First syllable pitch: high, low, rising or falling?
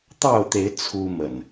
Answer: falling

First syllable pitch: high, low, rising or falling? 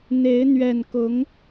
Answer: rising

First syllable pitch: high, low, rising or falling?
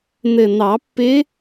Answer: low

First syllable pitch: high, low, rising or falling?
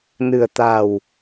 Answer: low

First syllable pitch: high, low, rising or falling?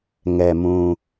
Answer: low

